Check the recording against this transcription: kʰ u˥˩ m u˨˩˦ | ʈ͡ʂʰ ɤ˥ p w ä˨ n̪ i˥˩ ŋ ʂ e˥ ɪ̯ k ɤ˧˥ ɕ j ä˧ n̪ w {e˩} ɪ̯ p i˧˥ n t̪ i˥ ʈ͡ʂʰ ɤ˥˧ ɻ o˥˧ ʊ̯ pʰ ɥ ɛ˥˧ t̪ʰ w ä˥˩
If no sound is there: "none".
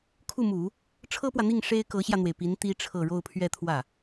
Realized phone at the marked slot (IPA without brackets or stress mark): e˩